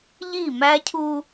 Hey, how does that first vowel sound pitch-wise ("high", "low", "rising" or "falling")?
falling